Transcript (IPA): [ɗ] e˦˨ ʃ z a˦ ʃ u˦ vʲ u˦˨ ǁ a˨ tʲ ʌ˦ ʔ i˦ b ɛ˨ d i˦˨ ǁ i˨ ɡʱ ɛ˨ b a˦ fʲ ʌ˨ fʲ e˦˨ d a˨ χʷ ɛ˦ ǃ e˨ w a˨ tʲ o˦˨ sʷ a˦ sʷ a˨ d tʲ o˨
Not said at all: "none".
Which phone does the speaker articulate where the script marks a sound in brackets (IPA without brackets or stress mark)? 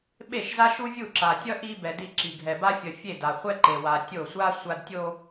ɓ